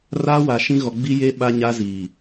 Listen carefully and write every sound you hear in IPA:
r aː˦ w a˨ ʃ ĩ˦ ɣ ɔ˨ ɡ͡b i˦ j e˦ ɓ a˦ ɲ a˦ z iː˨

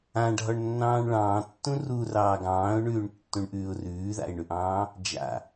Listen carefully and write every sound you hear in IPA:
ã ɖʱ ɔ ɳ nː ɑ̃ː ɳ ɭ ɑ̃ː tː ũ r u r ɑː ɡ ɑ̃ː ʊ̯ ɳ ʉː ɳ tː ũ ɳ ʔ ʉː ʊ̯ r ʉː ð a̰ ɪ̯ ɳ ʉ ʔ ɑ̃ː | d͡ʒ a̰

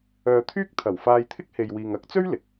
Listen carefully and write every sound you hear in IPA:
œː˨ t̪ʰ yː˥ k̚ t̪ʰ ɐ˨˩ w f aː˧ j t̪ʰ ɪ˥ k̚ h e˨ j w iː˨ ŋ ɐ˨˥ k̚ t͡s ɵ˥ ɥ l ɪ˧ k̚

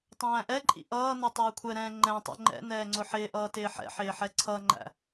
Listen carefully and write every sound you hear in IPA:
tˤ æ̃ː ʔ ɛ ǃʼ ḭ ʔ ʌː n ʌ tˤ ɛː kʷʰ ɛ ɾ ɛ̃ː ŋ͡ǃ ɛ̃ tˤ ɛ̰ ŋ͡ǃ ɛ̰ n ɛː ŋ͡ǀ ʊ ħ ɪː ʔ ʌː t ɪː ħ ɛ̰ ħ ɪː ħ ɛ ǀʰ ʌ ŋ͡ǃ æ̰

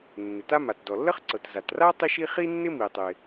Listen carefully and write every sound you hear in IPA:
nː ɪ˩ t a˥ m a˩ t d ɔ˩ lː ə˥ χ ǀ ɤ˩ t z a˩ t r a˥ tˤ i˥ ʃ i˥ χ i˥ nː ɪ˥ m i˩ tˤ ɪ˩

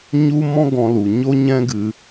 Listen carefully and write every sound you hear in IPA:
ɲ u˦ m ɔ̃˦ ɡ ɔ̃˧ l u˨ ɲ o˦ ɲ ɛ̃˦ ɡ ɨ˧

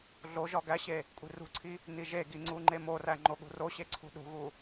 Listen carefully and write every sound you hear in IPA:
ɮ o ʒ ɒ ɡ æ ɕ e | kʷʼ i̤ r ṳ ǀʰ i | n i ʒ e ɡ i ŋ͡ǀ u ŋ͡ǃ e m o r æ ŋ͡ǃ o ɠ ṳ r o ɕ e ǀʰ ṳ ɗ ṳ ɣ u

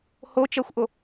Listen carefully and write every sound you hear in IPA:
h o t͡ʃ ɜ xʷ ʔ o

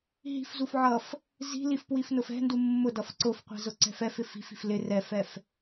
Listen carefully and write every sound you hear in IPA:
ɦ i̤ f z u f ʕ ʌ f | z i̤ l i f p w i f n ʊ f ɛ̤ n d u mː ʊ d ʌ f ǀ ʊ f qʷ ɛ̤ z ʊ ǀ ɛ̤ f ɛ f ɪ f i̤ f i̤ f l ɪ r ɛ f ɛ f

